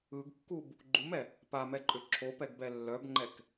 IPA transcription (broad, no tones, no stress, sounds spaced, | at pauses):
ɯ ɡ kː u b | ɡ͡ǃ u m ɛ | p a m ɛ ǃʼ ʏ ǁʰ o p ɛ ɡ b ɛ lː œ b ŋ͡ǃ ɛ k